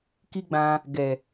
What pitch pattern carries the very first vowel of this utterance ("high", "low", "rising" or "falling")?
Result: high